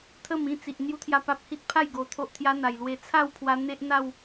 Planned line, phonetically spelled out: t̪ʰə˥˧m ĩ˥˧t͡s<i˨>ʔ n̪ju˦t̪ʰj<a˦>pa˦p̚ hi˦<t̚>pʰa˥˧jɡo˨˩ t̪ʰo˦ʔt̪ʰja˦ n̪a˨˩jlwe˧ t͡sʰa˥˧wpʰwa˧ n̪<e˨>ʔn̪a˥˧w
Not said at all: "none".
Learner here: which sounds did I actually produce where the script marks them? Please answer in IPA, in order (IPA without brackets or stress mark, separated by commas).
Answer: i˨, a˥˧, t̚, e˦